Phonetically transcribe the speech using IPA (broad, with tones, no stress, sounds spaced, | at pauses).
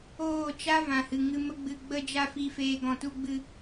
oː˦˨ t͡ʃ a˦ v ã˨ h ɨ˨ ŋ ɨ˧ m ə˦ ɡ͡b ɨ˧ ɡ͡b ə˦ d͡ʒ a˦ f i˧ f eː˧ ɡ ɔ̃˧ t u˦ ɡ͡b ɨ˦